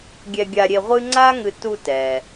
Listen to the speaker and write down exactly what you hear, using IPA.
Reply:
ɡʲ ɛ˧ ɡʲ a˧ ɾʲ e˧ ʁʷ ɨ˥ ŋ͡ǀ a˥ ŋ ɨ˧ t u˧ t ɛ˩

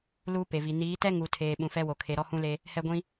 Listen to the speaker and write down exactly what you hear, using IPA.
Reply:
l uː˦ p e˨ v i˨ n iː˨˦ t ɛ˦ ŋ u˨ tʰ eː˨ ɓ ũ˨ f ɛ˦ w o˨ kʰ e˨ ɾ ɔ˦ h ũ˦ l e˦ | h ɛ˦ ɡʷ ĩ˦

